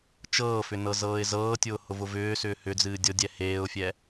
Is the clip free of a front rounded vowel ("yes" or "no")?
no